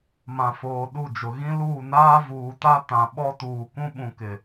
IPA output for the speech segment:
m ã˨ f oː˨ ɗ u˦˨ d͡ʒ ʊ˨ ɣ ĩ˦ l uː˦˨ n aː˦ v uː˨ t a˦ t ã˨ ɓ ɔ˦ t uː˨ k ũ˦ ɓ ũ˨ k ɪ˨

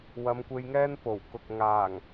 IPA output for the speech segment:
w ɐ˨˧ m kʷ e˧ j ŋ ɛː˥ n p o˨˩ w k ʊ˨ k̚ ŋ aː˨˩ ŋ

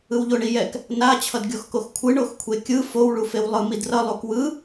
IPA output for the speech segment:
ɯ w ʎ o ɳ i j ɛ k | n a t͡ɕʰ ʌ d ɡʲ o x k o x kʷʰ ɯ ɳ o x kʷʰ e kʲ ɯ f o w ɭ u f e w lˠ ɯ m i d r ʌ lˠ u k w ɯ

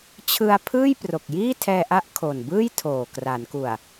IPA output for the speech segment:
t͡ɕʰ ɯ˧ a̯ pʰ ɯː˥˩ j p r o˨˩ k̚ j iː˥˩ tʰ ɛː˧ ʔ a˦˥ ʔ kʰ o˨˩ n b ɯː˥˩ j tʰ oː˨˩ k r a˩˦ n k u˨˩ a̯

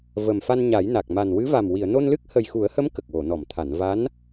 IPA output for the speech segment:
v ə˨˩ m f a˧ n ɲ a˨˩˦ j n a˨˩ k̚ m a˨˩ n w ɨ˧˥ v a˨˩ m w i˨˩˨ ə̯ n o˧ n l ɨ˦˥ k̚ h ə˨˩ j x u˨˩˦ ə̯ h ə˧˥ m k ə˨˩ k̚ w o˨˩˨ n ɔ˨˩˨ m t̪ʰ a˨˩˨ n v a˧˥ n

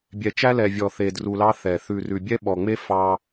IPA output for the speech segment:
bʲ ɛ˨ t͡ʃ æ˦ l ɛ˨ vʲ ɔ˨ θ e˨ d r u˨ l ɑ˦ θ ɛ˨ θ ʉ˨ r ʉ˨ bʲ ɛ˦ ɓ ɔ˨ ŋ͡m e˦ f ɑ˦

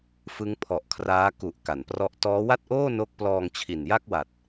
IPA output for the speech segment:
f ɯ˦˥ ŋ pʰ ɔ˨˩ ʔ kʰ r aː˦˥ k u˨˩ ʔ k a˨˩ n p r ɔ˥˩ ʔ t ɔː˦˥ w a˥˩ t̚ ʔ oː˥˩ n o˦˥ k̚ p l ɔː˧ ŋ t͡ɕʰ i˨˩ n j a˥˩ k̚ w a˨˩ t̚

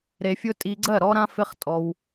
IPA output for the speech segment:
ɾ e˧ fʲ ʊ˦ tʼ i˧ ɡ͡ǀ ɜ˦˨ ɾ ɔ˦ ɾ ã˦ f ɪ˦ χ tʼ ɔ˧ w

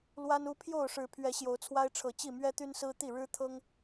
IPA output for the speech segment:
l w a˦ n u˦ pʰ j o˥˨ ʊ̯ ʂ ɻ̩˨˦ pʰ ɥ ɛ˨˦ ɕ j o˨˦ ʊ̯ t͡sʰ w a˦ ɪ̯ ʈ͡ʂʰ ɤ˨˦ t͡ɕ i˥˨ m ɥ ɛ˦ t̪ y˦ n s ɹ̩˦ t̪ i˥˨ ɻ ɻ̩˦ t̪ʰ ɤ˦ ŋ

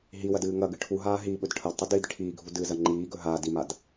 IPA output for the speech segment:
ɦ i w ɐ d ɨː ŋ ɐ ɡ ɨ ʈʰ u ɦ aː ɦ i ɓ ɵ d ʈʰ ɐ d tˤ u d iː d ʈʰ iː ɡʱ u d ɨː z ɐ ŋ͡ǃ iː ɡ ɵ ɦ aː d i m a d

